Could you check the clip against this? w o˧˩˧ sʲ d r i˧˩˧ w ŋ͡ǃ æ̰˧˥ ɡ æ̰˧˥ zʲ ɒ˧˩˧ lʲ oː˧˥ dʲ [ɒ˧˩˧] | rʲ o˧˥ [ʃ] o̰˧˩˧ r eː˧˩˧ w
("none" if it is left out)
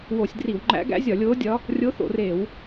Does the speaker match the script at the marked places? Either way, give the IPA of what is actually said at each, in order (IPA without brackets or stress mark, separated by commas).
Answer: ɒ˧˥, θ